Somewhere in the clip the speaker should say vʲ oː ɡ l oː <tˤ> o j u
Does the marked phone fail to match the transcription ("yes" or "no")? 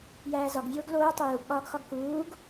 no